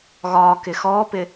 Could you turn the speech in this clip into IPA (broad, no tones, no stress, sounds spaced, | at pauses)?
ɣ ɒː k ɪ x ɔː p ɪ